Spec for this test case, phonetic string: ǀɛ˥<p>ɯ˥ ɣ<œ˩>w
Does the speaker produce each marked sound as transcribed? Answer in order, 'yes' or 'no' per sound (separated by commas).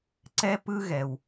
yes, no